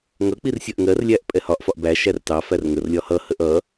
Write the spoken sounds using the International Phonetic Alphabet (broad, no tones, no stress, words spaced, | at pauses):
ŋʌk͡pir sʲɜʔŋɜrlʲæʔ pʼɛhɒʔfɒʔ bæ ʃærtɑfær ŋərlʲɒ hʌhəʔ ʌ